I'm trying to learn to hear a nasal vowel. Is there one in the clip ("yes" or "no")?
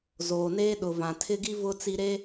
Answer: yes